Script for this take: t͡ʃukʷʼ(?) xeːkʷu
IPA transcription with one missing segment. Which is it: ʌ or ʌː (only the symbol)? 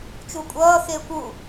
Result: ʌː